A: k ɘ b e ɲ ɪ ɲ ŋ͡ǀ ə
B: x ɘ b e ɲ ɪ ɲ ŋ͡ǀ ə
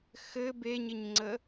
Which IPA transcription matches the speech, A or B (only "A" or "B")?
B